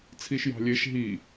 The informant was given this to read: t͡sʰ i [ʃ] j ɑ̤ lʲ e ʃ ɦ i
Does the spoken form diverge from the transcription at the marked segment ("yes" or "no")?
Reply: no